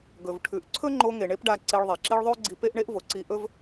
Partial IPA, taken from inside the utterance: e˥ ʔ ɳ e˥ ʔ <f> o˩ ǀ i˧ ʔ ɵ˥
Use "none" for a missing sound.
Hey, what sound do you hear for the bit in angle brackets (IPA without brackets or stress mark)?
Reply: v